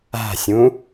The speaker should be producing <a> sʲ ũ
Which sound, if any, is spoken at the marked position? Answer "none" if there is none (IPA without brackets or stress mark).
a̤